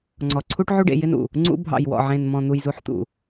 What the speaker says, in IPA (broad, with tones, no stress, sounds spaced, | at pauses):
ŋ͡ǀ ɔ˨ ǀʰ u˦ ʈ ʕ u˦ ɖ ḛ˨ j ɪ˦ n ṵ˨ | ŋ͡ǀ ṵ˦ bʱ ɑ̰˨ j w ɔ̰˨ ʕ ẽ˨ n m ɔ̃˨ n̪ u˨ j z u˨ ħ t̪ ṵ˨